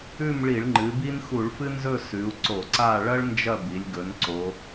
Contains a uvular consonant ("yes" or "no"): no